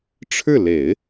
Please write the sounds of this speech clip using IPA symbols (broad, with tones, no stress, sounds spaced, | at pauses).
ʈ͡ʂʰ ɻ̩˥˩ l e˨˩˦ ɪ̯